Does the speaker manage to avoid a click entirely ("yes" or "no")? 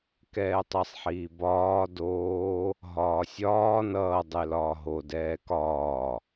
yes